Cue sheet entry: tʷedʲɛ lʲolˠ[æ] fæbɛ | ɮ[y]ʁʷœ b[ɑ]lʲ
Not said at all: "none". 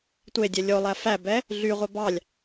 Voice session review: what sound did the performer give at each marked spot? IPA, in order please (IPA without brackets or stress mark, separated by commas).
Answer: æ, y, ɑ